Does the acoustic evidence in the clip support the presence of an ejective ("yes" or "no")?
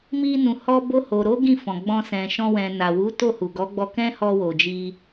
no